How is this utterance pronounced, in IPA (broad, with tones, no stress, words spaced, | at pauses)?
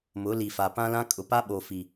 mʊ˨˦li˨fa˨ pã˦lã˦ kʼʊ˨ pa˦ɓo˨ fi˨